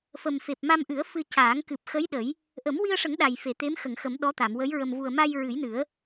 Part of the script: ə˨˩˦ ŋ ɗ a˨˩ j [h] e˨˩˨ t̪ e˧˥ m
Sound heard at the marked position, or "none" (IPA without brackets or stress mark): f